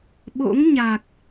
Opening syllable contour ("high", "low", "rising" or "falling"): rising